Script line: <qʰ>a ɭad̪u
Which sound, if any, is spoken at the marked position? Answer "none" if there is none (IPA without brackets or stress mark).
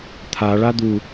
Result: t̪ʰ